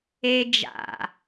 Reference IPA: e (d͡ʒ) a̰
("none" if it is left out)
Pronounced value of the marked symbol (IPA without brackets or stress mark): d͡ʒ